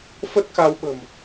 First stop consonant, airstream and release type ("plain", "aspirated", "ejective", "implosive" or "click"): plain